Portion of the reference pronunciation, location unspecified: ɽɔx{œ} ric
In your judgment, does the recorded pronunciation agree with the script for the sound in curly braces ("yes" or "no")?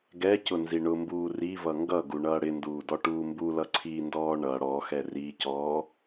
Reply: no